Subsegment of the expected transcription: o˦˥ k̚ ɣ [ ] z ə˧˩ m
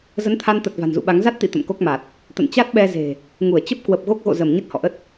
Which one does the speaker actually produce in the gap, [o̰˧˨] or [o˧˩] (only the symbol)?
o̰˧˨